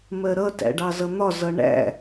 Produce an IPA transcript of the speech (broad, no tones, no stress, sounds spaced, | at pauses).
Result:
m ɜ ɾ ʌ t æ̰ ɖ ɑ z ʌ n̪ ɒ z ʌ ɳ æ̰